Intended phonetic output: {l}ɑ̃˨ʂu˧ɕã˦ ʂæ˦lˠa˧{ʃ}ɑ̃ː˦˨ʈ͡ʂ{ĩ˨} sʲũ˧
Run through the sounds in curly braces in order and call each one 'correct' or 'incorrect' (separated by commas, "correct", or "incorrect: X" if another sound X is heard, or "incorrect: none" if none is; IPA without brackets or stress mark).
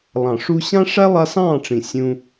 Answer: incorrect: lˠ, incorrect: s, correct